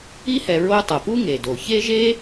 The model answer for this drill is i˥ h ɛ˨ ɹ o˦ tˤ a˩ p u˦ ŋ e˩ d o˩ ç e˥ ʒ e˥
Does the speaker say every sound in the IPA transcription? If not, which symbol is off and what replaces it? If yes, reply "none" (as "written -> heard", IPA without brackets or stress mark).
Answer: none